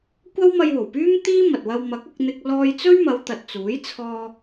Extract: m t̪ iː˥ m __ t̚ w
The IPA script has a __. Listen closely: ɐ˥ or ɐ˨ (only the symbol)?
ɐ˨